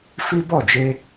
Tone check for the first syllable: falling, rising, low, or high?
high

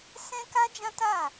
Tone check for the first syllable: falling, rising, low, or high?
high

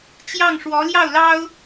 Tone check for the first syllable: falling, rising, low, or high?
falling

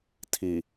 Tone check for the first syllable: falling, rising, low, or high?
low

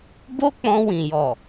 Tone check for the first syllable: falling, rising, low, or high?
high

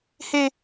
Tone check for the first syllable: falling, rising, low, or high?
high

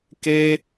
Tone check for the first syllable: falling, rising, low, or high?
high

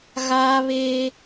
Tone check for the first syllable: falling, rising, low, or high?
high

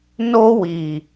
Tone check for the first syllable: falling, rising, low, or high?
high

